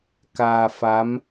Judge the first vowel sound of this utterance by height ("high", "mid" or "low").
low